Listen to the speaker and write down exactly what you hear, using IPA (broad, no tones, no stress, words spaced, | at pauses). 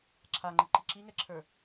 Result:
ǁʰaŋ͡ǃəǃi ǁiŋɛǁʰə˞